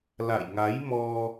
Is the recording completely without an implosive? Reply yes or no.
yes